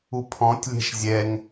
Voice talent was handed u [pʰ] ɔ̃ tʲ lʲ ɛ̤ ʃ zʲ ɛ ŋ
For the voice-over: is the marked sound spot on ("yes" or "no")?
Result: yes